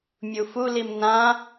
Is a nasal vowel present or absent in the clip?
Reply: present